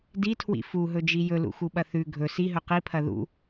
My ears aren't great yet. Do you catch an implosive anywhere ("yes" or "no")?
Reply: yes